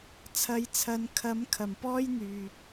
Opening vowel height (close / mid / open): open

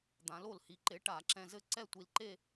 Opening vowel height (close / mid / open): open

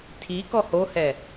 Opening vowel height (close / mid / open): close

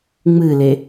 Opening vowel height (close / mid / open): close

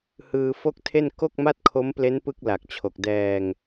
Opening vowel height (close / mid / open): close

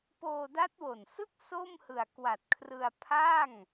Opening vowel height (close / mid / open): mid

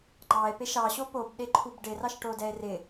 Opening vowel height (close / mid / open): open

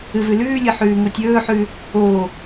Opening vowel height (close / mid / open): close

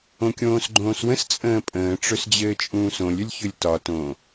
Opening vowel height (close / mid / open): mid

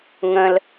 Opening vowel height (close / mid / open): mid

